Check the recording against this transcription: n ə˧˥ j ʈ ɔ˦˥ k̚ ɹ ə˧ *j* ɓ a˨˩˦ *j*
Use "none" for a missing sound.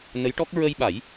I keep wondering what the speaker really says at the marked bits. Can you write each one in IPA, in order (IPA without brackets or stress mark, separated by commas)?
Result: j, j